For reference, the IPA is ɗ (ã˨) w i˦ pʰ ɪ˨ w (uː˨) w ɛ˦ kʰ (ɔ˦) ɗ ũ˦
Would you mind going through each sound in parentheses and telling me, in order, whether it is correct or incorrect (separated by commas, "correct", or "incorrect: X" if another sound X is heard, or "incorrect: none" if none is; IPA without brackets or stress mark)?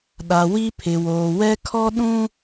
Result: incorrect: a˨, incorrect: oː˨, correct